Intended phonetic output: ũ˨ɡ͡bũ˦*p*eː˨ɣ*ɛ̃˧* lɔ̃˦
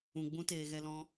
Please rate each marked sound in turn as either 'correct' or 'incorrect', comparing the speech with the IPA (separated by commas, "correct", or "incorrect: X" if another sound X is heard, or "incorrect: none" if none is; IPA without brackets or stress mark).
incorrect: t, incorrect: ɛ˧